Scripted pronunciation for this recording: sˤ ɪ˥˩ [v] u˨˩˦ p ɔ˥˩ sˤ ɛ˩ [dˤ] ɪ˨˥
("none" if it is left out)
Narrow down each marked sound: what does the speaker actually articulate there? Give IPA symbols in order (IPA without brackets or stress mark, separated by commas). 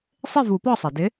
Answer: v, d